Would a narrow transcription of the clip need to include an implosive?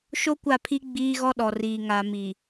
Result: yes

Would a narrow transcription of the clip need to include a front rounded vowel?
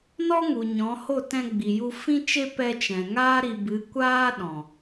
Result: no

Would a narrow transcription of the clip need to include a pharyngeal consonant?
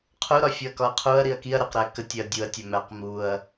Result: no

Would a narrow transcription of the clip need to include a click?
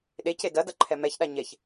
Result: yes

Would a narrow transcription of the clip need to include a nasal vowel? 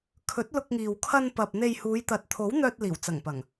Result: no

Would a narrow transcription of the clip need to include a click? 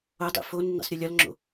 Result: yes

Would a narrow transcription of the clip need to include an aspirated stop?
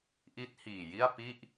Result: no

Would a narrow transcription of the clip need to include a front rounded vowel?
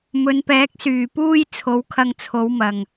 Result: yes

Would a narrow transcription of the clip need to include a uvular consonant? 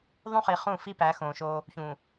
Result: yes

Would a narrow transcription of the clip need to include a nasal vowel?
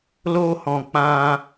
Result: yes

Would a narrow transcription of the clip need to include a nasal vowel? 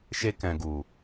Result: yes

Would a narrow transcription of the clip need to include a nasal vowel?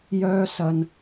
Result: no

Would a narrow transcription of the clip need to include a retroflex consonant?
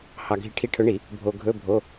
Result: yes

